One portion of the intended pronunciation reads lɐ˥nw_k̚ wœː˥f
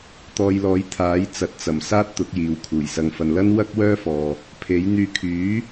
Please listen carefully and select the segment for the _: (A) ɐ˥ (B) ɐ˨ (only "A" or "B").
A